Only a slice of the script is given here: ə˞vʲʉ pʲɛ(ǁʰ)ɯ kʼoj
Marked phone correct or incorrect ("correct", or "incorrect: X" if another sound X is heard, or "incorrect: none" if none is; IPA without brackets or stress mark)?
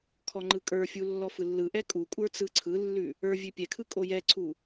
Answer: incorrect: kʰ